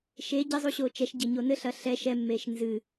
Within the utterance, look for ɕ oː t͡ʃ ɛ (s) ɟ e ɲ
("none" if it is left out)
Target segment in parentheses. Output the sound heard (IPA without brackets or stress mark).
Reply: ʃ